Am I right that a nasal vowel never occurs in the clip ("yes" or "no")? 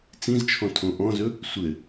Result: no